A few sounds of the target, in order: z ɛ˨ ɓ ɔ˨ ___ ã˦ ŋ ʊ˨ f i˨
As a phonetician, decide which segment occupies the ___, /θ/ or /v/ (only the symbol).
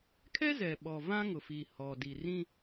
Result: v